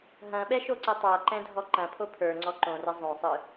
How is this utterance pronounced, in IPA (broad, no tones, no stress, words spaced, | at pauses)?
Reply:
ɦɐ̃ɓɛʃoǀɛ tˤaǃɛ̃dʱɔ ǃɐ̃pʰo pʰə˞ŋ͡ǀɔ ǃõrɘ zˤõsˤɯ